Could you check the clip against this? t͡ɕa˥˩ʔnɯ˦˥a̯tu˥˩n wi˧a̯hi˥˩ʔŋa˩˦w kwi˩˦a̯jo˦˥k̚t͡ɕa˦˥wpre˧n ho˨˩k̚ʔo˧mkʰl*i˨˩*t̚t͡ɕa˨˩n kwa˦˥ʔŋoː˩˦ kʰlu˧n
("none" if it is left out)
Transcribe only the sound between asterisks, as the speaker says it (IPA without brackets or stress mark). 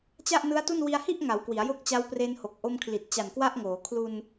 i˨˩